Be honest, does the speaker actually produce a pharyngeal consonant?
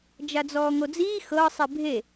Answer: no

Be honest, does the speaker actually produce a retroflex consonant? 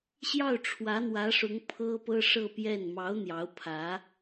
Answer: yes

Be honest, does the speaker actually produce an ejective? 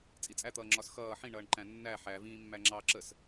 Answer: yes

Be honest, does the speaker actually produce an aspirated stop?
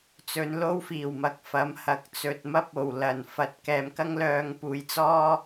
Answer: no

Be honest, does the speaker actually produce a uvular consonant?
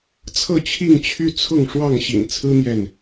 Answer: no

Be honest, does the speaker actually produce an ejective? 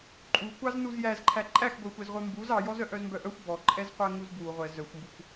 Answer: yes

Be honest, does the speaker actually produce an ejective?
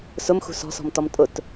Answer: yes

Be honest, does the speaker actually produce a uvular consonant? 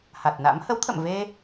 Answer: no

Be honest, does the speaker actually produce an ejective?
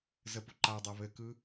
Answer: no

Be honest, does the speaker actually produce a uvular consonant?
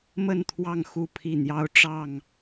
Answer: no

